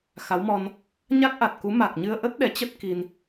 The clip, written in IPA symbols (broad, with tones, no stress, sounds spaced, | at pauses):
x a˨˦ w m ɔ˧ n | ɲ a˦˥ k̚ ʔ a˨˩ t̚ k u˨˦ m a˨˩ k̚ ɲ ɨ˧ ə̯ ʔ ə˦˥ t̚ ɗ ɛ˨˦ t͡ɕ ə˦˥ t̚ k i˧ n